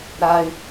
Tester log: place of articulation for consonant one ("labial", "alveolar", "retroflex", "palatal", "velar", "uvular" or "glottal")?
alveolar